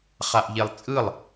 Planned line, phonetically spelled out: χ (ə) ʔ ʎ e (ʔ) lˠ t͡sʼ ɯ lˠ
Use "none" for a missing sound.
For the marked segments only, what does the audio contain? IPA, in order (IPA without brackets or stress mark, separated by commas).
a, none